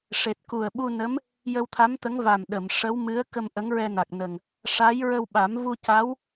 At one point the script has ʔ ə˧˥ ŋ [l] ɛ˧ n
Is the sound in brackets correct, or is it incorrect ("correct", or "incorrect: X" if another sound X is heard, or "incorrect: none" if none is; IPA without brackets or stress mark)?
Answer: incorrect: ɹ